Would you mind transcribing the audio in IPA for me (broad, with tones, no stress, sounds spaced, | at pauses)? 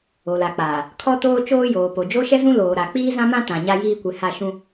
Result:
o˨ l a˨ k͡p aː˨ | kʰ ɔ˦ t oː˦ t͡ʃ oː˦ j oː˨ p o˨ d͡ʒ o˦ ʃ ɛ˦ z ũ˦ l oː˨ ɾ a˨ k͡p iː˦ z ã˦ m ã˦ t ã˨ ɲ a˦ j iː˦ kʷ ɪ˨˦ h a˦˨ ʃ ũ˦